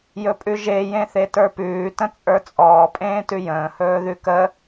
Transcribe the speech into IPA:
jɵpʼʉʒe jẽθetə˞pʉː tə̃t͡sʼə˞t͡sʼɔː pʼẽːtʉjə̃ː hɵːðʉkə

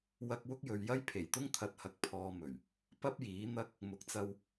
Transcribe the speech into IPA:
wɐ˧k̚ wʊ˥k̚jɵ˨˧ɥjɐ˥j pʰe˨˩jt̪ʊ˥ŋ t̪ʰɐ˧t̚hɐ˧k̚ pʰɔː˧mɵ˨˩ɥ | pɐ˥p̚jiː˨˥n̪ɐ˥k̚ | mʊ˨˥k̚t͡sɐ˧w

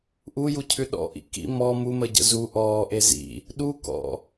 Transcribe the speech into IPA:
ʔujucʰʉ ɗɔ̰ʔḭ kḭ mɔ muməɟə̰ zu ʔɔːʔe zḭ | ɗukɔ̰

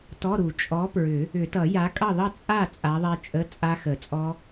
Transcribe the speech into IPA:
tɔ˧˥˧ɾu˨˩˦ t͡ʃʼɔ˨˥pɹʏ˨˩˦ | ʏ˨˩˦tʌ˨˩˦ ja˨˥kʼʌ˥˨ðˤʌ˥˨ t͡sʼa˥˨ t͡sʼa˨˥ðˤɛ˦˥t͡ʃʼə˧˥˧ t͡sʼa˦˥xə˨˩˦t͡sʼɔ˦˥

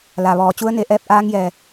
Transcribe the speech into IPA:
la˩ʋɔː˩ t͡ɕu˧˥ə̯ne˧ ʔɛː˧˥p̚ʔaː˧˥ŋjɛː˩

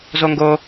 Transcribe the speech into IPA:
zoŋɡo

